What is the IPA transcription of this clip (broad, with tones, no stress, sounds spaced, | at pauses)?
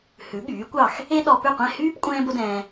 h ʉ˩˥ ɠ yː˩˥ kʷ ɑ˥˩ x | e˥ ɗ ɔ˧ p ʉ˥˩ qʷ ɛ̃˥˩ h yː˥ p kʷʼ ɛ̃ː˥ b o˥ d ɛ̃ː˧